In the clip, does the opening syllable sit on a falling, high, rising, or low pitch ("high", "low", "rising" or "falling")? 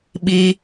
high